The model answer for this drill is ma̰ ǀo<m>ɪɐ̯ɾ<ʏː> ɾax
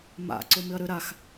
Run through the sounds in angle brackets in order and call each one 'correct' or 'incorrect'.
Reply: correct, incorrect

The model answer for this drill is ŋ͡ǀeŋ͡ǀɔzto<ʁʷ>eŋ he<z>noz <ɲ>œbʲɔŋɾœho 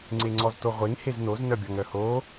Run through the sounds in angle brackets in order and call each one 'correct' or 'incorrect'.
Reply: correct, correct, incorrect

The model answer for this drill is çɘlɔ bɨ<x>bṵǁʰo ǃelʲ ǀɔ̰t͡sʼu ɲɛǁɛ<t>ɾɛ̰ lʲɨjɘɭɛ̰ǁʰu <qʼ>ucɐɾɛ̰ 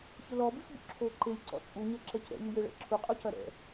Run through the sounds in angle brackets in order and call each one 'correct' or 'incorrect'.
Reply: correct, incorrect, correct

